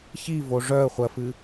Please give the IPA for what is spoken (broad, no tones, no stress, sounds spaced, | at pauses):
ç i v o ʐ œ ə̯ χʷ ɜ f ɨ